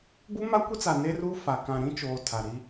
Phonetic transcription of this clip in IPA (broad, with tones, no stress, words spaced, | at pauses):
bu˦ma˦kʷi˦t͡sa˨ ne˦ru˦fa˨ kã˨ ɾĩ˦t͡ʃoː˨ tʰa˨ɾi˦